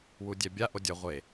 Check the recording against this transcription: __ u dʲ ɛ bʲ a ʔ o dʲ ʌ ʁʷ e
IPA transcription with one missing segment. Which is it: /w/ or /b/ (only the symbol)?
w